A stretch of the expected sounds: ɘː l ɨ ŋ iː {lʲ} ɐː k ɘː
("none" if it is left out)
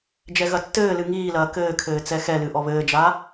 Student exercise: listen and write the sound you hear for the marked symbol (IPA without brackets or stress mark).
l